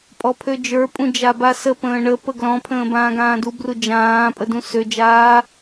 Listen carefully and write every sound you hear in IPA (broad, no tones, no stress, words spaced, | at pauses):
pʼɔpʰød͡ʒə˞ pʼũd͡ʒabasə pə̃ːɳəpə ɡlɔ̃pʰə̃ː bãːɡãːdu brud͡ʒãː pʼədũsød͡ʒaː